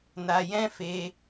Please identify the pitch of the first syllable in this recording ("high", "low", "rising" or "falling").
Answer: low